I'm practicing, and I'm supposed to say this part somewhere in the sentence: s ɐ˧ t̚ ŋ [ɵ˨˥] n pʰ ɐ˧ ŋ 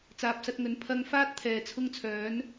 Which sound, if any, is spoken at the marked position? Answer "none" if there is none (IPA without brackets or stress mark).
ɵ˨˥